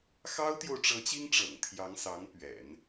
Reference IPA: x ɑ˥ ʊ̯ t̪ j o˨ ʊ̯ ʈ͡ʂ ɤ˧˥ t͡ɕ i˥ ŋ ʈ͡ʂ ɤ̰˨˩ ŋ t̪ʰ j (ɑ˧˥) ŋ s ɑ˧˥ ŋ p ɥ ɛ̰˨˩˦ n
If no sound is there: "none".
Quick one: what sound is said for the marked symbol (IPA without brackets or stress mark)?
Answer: ɑ˧˥